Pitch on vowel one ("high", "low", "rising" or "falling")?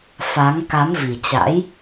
rising